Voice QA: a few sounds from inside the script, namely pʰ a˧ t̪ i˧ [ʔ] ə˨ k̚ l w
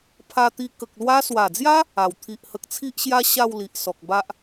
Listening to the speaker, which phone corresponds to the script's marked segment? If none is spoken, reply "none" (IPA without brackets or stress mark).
k